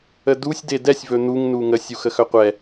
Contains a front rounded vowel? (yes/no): yes